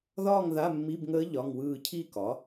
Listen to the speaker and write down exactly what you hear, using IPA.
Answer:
ð ɒː˥˧ ŋ ð a˧˥˧ mː i˧˥˧ b ŋ əː˧˥ ʎ ɒ˧˥˧ ŋ w ɯː˥˧ cʰ i˥˧ k ɒ˩˥

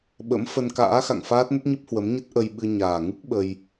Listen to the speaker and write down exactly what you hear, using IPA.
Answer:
ɓ ə̰˧˥ m f ə˧ n k a̰ː˧˥ x a̰˧˨ ŋ f aː˦˥ t̚ n ə˦˥ t̚ ɲ ɨ˦˥ p̚ h w ə˨˦ m ɲ ə˦˥ t̚ ʔ ə˧ j ɓ ɨ˧ ɲ aː˨˩ ŋ ɨ˦˥ k̚ ɓ ə˧ j

